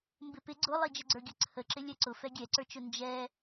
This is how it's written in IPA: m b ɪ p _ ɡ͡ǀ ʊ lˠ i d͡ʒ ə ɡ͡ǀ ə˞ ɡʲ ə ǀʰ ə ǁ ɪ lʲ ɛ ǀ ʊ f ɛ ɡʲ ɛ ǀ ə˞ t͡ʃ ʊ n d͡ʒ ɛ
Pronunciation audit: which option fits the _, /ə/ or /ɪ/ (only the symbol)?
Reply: ɪ